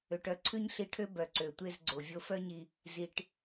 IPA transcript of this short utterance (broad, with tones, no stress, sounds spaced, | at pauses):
ø˩ ʈ œ˧ ǀʰ ʉ˥ ɲ ɬ i˧ ʈʰ ø˥ b œ˩ ǀ ø˩ tʷ e˧ z ɡ͡ǀ o˩ vʲ o˧ f œ˥ ɲ i˧ | z i˩ ʈ